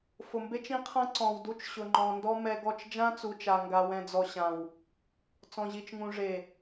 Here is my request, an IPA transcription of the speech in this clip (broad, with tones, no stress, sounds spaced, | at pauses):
f ʊ˨ m b e˦ t͡ʃ ĩ˦ qʰ ã˦ ǀ ɔ̃˨ w d u˦ t͡ʃ ɕ ʊ˨ ŋ͡ǃ ɔ̃˨ n d ɔ˦ m ɛ˦ ɡ ɔ˦˨ t͡ʃ d͡ʒ ã˦ t͡s u˨ t͡ʃ a˨ ŋ ɡ a˨ w ɛ̃˨ d͡z ɔ˨ ɕ ã˨ w | t͡s ɔ̃˨ ʑ i˨ t͡ʃ ŋ ũ˨ ʐ e˨